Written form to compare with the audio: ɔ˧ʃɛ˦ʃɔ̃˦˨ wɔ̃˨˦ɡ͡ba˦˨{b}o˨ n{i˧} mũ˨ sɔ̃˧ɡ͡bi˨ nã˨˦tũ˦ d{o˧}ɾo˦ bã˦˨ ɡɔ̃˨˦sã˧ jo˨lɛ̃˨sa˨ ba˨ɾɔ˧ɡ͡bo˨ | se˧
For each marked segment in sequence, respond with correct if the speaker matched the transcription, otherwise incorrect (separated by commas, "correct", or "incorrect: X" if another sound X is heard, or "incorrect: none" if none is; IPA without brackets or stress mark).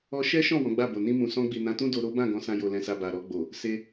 correct, incorrect: ĩ˧, correct